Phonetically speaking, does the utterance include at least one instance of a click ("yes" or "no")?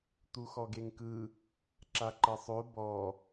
yes